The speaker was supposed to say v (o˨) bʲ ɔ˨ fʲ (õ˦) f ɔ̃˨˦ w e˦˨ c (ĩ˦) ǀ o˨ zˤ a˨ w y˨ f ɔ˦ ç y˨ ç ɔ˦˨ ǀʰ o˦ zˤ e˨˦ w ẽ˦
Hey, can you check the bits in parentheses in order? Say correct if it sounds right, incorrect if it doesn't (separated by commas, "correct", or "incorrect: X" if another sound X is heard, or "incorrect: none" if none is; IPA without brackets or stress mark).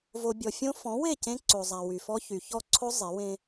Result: correct, correct, incorrect: ẽ˦